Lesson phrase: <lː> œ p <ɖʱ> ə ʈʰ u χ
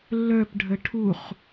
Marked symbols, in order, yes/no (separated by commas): yes, yes